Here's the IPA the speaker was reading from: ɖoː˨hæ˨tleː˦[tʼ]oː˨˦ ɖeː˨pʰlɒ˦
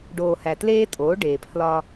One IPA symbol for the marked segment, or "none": tʼ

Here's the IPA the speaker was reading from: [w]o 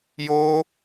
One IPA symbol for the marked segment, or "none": j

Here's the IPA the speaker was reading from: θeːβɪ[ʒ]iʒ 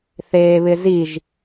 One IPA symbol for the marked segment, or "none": z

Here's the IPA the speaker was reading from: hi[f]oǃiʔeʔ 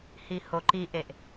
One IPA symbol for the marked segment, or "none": h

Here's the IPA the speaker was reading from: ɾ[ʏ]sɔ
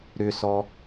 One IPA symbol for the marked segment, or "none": ʏ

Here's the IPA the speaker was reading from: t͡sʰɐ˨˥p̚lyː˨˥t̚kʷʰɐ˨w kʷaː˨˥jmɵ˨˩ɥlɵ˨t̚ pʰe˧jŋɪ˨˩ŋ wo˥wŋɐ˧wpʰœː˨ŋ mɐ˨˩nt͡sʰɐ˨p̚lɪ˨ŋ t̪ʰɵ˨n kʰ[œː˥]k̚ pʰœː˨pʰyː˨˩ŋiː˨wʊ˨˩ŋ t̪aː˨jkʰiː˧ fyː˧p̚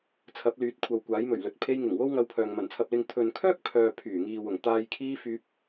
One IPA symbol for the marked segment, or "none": œː˥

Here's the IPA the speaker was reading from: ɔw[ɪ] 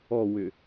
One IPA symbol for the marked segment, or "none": ʏ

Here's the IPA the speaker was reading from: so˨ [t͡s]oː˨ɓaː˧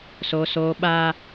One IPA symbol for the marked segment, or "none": s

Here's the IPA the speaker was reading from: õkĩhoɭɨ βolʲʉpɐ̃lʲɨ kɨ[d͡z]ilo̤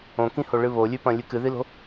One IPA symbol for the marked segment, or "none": ð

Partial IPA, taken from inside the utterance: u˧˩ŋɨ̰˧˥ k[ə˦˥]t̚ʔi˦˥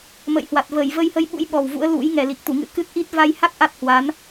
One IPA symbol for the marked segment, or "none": ɨ˦˥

